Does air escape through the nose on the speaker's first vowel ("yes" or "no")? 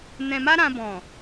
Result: yes